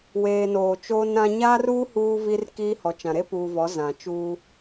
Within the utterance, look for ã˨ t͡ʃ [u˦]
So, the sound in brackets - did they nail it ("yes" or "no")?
no